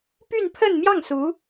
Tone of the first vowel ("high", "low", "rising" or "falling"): falling